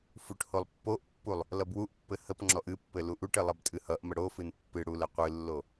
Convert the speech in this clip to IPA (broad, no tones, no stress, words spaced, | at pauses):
fuʈholˠpːoʔpːulˠ | lʌbwuʔpːɘ həpŋ͡ǁɔʔ ɨpːɘ luʔuʈɘ lˠʌbtʼɨhʌʔmə ɽofɨn pːɨ ɽuləqʷɨlːo